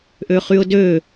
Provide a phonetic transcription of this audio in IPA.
ʔ ø χ y ʊ̯ d ø

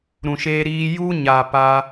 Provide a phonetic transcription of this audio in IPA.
ɾ ũ˨ ʃ eː˧ ɾ iː˧ j u˦ ɲ aː˨ p a˧

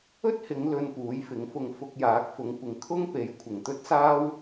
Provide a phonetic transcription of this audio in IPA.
ɵ˥ t̚ h ɪ˨˧ ŋ l ɵ˧ n p uː˨˥ j f ɪ˨˥ ŋ f ʊ˧ ŋ f ʊ˧ k̚ j aː˨˥ k̚ f ʊ˨˧ ŋ kʷ ɪ˨˧ ŋ kʰ ʊ˥ ŋ p e˨˥ j kʷʰ ɪ˨˩ ŋ t̪ ɵ˥ t̚ s aː˥ w

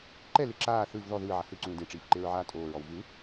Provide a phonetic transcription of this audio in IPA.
ǃ ɛ l e ǁ aː θ ɯ v ð ɔ ð ɯː ʕ a h ɯ ǀ ũː d ẽ ʈ͡ʂ iː f ǃ e ɹ ʕ aː tʼ oː ɹ ɔ w v ɯ

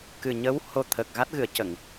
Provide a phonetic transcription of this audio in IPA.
k ɨ˨˩ ɲ ə˧˥ w h o˧ t̪ʰ ə˨˩ k̚ ɣ a˦˥ t̚ ɣ ɨ˨˩˦ ə̯ c ə˨˩˨ ŋ

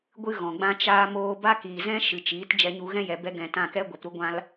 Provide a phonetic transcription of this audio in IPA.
ɡʷ ɨ˦ ɣ ɔ̃˨ ɡ͡b ã˧ t͡ʃ aː˧ m oː˧ b a˦ k iː˨ z ɛ̃˦ ʃ ɨ˨ t͡ʃ iː˨˦ t d͡ʒ ɛ˧ ɲ u˧ ɣ ɛ̃˦ j ɛ˨ b ɛ˧ ɡ ɛ̃˨ t ã˦˨ k ɛ˦ ɡʷ ɛ˨ p ɾ u˦ ɡʷ ã˦ l

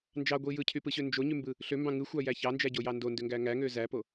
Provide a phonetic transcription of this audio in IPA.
n d͡ʒ ɑ ɡʷ i j ɯ cʰ y p ɯ ɕ ø n d͡ʒ o ɲ y m b ɯ | ɬ ø m b ɑ̃ ŋ ɯ xʷ ɑ j æ ç ɑ n d͡ʒ æ ɟ o j ɑ n d o n d ø ŋ ɡ æ ŋ æ ŋ ø z æ p o

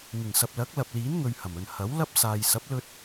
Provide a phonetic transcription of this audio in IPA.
ŋ ɪ˨˩ ŋ s ɐ˨ p̚ l ɐ˨˥ k̚ l ɐ˨ p̚ l iː˨˥ n ŋ ɵ˨ ɥ h ɐ˨˩ m ɵ˨ n h ɐ˨˥ w l ɐ˥ p̚ s aː˨ j s ɐ˨˥ p̚ l ɵ˧ t̚

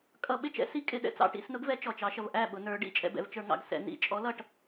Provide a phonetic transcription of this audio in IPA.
kʼ ʌ˧˩˧ ɓ ɪ˥˩ t͡ʃ ɛ̰˨˥ s i˨˥ kʼ ɪ˩˧ ɗ ɛ̰˩ t͡s ɑ̰˧˩˧ ʈ ḭ˧˩˧ s n ʊ˨˥ ɡ v ɛ˨˥ t͡ʃ ɔ˩ t͡ʃ ɑ˩˧ ʃ ʌ˩ v ʔ æ˥˩ ɓ ʊ˩˧ n ə˞˩˧ ɖ ḭ˥˩ t͡ʃʼ ɛ̰˧˩˧ b ɛ̰˩ v t͡ʃ ə˞˧˩˧ ŋ ɑ̰˩ ɡ s ɛ̰˧˩˧ n ḭ˧˩˧ t͡ʃʼ ɔ˨˥ l ʌ˥˩ ʈ

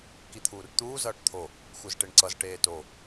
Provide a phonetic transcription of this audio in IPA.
k i t̪ʰ uː r t̪ uː z ʌː ʈ t̪ʰ o | xʷ ɯ z ʈ e ɳ ǀ ʌ z ʈ eː t o

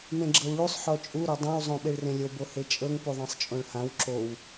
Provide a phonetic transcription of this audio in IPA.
m ẽ ɡ͡ǁ ɤ w ɭ u sˤ ħ ɔ t͡ʃʼ u ɾ o dˤ õ w zˤ õ ɓ e ɭ r ẽ lʲ o b o h e t͡ʃʼ ɤ ŋ p u ðˤ ã sˤ t͡ʃʼ õ ɭ h ã w ǁ o w

